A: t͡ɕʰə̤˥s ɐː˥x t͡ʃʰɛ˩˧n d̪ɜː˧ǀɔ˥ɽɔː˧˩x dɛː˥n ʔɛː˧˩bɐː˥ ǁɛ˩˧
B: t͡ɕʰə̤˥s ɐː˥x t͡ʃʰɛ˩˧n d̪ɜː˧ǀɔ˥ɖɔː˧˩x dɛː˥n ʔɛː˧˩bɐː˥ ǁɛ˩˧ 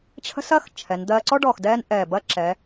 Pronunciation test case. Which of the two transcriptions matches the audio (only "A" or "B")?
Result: B